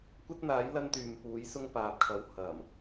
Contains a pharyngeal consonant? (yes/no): no